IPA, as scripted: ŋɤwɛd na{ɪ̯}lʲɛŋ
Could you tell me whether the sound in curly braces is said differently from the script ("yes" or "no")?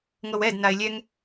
no